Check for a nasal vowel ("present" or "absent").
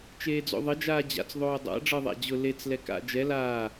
absent